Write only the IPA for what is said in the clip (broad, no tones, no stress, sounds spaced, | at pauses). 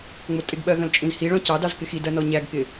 ŋ͡m ʊ tʼ ɪ ɡ ɓ ɜ ɣ ə̃ l t͡ʃʼ ĩ z h i ɭ ɔ̃ c ɑ d ɑ z k ɪ x i d ɜ n ɔ ɲ æ ɡ k ɪ